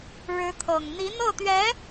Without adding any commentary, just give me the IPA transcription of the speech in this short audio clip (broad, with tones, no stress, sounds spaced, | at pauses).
ɻ ɻ̩˧˥ t̪ʰ ɤ˨˩ ŋ n̪ i˧˥ n̪ ɤ˥˩ t̪ ɥ ɛ˧˥